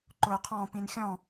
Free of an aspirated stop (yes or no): no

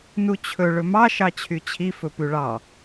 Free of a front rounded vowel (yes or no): no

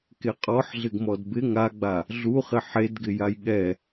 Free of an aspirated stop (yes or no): yes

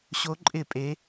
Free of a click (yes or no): no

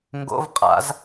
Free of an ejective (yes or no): no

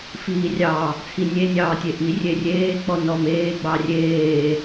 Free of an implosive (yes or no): yes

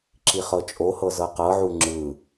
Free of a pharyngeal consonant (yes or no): no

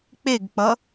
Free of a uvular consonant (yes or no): yes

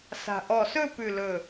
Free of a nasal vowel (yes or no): yes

